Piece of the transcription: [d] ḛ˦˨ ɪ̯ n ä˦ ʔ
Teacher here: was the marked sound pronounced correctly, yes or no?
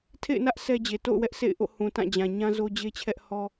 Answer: no